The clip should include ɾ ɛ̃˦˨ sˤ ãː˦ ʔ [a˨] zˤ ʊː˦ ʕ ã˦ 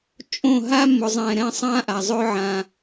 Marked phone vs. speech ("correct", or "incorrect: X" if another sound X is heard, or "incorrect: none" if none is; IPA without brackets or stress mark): correct